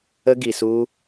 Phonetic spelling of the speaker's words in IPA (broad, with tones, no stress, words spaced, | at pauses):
ə˦ ɡi˧su˦